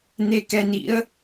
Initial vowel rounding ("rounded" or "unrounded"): unrounded